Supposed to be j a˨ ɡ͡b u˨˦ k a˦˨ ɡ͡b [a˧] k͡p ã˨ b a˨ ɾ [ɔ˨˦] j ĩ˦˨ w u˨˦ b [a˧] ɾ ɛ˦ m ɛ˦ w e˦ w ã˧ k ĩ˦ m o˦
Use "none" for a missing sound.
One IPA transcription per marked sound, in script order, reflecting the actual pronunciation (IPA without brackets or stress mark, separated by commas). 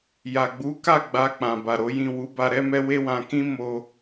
a˧, o˨˦, a˧